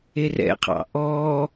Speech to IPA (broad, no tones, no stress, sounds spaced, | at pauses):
e r ɛ̰ qʰ ɑ̰ ʔ ɔ